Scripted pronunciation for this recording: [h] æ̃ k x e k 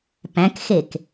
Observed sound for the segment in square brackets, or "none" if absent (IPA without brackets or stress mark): p